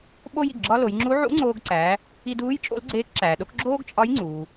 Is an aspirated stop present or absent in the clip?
absent